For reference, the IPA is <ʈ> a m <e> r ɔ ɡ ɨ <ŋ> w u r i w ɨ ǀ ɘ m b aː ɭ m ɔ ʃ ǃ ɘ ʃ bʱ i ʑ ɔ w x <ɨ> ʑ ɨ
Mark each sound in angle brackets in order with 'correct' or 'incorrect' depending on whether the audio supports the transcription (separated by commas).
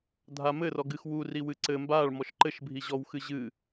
incorrect, incorrect, incorrect, correct